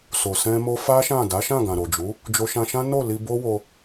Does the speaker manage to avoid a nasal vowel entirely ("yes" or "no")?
no